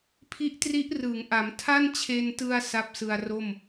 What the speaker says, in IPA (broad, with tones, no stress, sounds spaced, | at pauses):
pʰ i˦˥ ʔ t r i˦˥ ʔ r ɯː˩˦ ŋ ʔ a˩˦ m tʰ a˥˩ n t͡ɕʰ e˧ n t ɯ˧ a̯ s a˥˩ p̚ s ɯ˧ a̯ r o˥˩ m